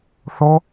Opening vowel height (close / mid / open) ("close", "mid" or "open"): mid